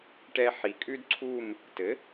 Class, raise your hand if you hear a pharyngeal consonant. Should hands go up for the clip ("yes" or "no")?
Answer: yes